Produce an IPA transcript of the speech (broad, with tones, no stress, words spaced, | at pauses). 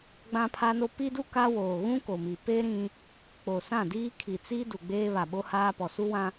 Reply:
ɡ͡bã˦pʰa˦no˦ pi˦du˦ ka˦woː˨ ɣũ˦ ko˨mi˨ pe˦ ɾĩ˦ | k͡po˨sã˦˨diː˦ kʰi˨t͡si˦ du˨ɡ͡beː˦βa˨ɓo˦ haː˦pɔ˨ su˦wã˦